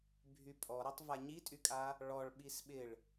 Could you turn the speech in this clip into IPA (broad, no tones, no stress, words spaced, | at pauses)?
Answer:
bʱypʼɔɾɐtˤ vaɲitʼykʼa | ɭɔɭ ɓisɓɪɭ